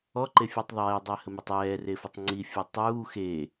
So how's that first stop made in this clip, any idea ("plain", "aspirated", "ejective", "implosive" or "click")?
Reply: click